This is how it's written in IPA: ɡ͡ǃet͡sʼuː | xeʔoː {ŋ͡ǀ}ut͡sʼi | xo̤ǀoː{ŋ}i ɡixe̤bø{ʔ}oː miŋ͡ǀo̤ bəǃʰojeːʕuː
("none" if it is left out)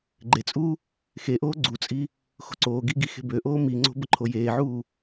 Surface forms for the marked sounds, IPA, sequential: ɡ͡ǀ, ɡ, ʔ

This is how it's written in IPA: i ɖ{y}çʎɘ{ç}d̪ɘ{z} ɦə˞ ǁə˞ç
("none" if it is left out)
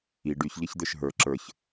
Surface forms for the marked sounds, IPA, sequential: y, ç, ʃ

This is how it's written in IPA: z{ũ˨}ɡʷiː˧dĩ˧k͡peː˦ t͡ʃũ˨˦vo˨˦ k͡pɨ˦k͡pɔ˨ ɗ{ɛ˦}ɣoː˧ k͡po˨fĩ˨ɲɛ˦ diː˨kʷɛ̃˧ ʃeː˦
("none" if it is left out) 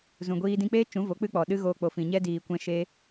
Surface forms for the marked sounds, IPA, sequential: ũ˨, ɨ˦

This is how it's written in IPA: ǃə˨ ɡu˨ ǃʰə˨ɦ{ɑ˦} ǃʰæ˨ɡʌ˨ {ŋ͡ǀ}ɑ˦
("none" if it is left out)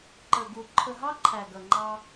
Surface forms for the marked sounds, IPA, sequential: ɑ˦, ŋ͡ǃ

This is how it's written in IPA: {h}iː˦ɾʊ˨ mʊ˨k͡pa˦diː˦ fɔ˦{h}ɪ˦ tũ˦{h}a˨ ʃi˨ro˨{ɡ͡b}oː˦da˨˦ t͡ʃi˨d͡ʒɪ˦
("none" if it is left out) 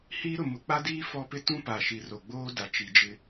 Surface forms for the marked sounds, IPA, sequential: h, p, p, ɡ͡b

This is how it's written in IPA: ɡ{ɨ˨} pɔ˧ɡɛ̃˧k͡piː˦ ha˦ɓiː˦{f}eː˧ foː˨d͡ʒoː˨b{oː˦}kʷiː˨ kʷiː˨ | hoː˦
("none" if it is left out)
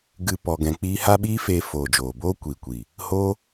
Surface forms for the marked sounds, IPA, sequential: ɨ˧, f, oː˦

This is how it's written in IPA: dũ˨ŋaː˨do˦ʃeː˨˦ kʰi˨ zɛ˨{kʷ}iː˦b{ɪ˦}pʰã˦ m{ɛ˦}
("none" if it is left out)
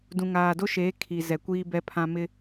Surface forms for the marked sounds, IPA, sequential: kʷ, ɛ˦, ɪ˦

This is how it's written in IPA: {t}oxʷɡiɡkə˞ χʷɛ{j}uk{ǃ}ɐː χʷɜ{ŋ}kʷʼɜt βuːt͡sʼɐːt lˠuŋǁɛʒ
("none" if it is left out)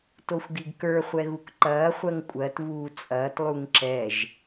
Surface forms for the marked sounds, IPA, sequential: t, ɣ, ǃ, ŋ

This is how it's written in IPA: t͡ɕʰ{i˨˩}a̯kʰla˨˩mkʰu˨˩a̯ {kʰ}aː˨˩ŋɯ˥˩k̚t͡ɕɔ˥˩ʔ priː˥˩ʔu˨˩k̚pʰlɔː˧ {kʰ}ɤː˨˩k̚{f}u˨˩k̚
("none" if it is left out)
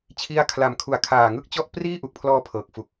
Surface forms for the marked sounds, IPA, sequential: i˦˥, kʰ, pʰ, f

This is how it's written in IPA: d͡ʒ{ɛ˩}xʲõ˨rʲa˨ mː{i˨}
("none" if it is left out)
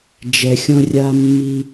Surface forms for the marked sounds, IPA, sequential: ɛ˩, i˨

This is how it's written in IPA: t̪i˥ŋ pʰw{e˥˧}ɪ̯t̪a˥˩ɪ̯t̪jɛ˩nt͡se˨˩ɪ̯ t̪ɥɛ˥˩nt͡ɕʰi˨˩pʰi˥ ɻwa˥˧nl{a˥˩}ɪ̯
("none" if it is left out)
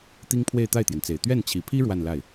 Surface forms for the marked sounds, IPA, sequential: e˥˧, a˥˩

